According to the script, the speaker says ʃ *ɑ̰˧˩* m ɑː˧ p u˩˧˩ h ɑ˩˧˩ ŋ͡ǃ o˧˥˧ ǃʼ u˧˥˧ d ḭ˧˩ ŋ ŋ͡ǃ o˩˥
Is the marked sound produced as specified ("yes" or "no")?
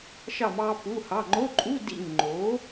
no